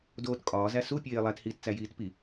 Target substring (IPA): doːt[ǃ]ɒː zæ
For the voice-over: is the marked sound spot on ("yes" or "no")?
no